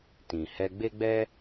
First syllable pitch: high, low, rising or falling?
low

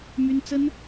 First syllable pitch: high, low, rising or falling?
high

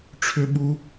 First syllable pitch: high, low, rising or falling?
high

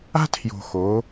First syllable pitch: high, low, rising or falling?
high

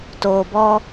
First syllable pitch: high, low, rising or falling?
low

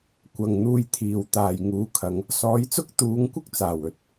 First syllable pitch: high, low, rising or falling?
low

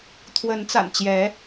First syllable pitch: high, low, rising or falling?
rising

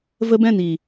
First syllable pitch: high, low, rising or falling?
high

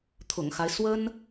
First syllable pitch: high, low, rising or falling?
low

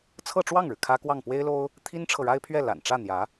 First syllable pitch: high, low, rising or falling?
falling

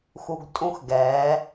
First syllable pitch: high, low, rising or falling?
low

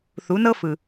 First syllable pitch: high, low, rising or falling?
rising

